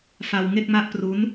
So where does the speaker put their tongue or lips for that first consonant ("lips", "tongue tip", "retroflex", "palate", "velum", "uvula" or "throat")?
lips